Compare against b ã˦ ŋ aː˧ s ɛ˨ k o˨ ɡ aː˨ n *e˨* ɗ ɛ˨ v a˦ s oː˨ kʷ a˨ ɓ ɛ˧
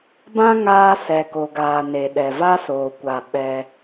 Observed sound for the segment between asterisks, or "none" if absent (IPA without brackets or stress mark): e˨